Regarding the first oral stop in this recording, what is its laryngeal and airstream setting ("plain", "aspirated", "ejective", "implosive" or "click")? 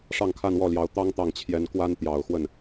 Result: aspirated